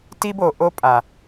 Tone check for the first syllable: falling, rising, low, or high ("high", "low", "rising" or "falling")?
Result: high